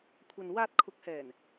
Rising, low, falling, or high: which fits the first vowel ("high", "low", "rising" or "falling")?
low